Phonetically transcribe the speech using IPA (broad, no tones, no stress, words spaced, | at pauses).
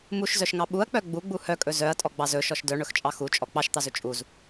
muʃzœʃŋɑ ɓuɐ̯k͡pœ ɡ͡buɡ͡bu hœkʼɵ zœɐ̯tʼɔɡ͡bɑz ɵʃɔʃ dœɳɵxt͡ʃʼɑ xut͡ʃʼɔ k͡pɑʃt̪ɑzɵ t͡ʃʼuz